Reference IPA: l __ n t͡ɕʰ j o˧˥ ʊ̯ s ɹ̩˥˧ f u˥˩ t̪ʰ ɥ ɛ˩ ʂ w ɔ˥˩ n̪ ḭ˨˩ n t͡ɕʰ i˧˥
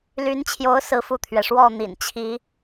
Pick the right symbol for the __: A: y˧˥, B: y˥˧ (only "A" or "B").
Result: A